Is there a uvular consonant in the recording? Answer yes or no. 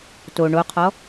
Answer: yes